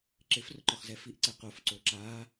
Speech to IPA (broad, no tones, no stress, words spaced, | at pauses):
ǁɪfrʊǃʊχzɛ fiʔǀɛ qofǀo ǁa